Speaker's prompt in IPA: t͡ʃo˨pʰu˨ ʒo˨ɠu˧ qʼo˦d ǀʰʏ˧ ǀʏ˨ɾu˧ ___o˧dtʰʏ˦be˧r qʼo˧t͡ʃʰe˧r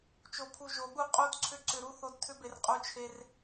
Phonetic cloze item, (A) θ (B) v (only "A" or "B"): A